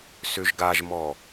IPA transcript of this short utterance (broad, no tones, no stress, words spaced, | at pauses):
søʒɡaʒmɔ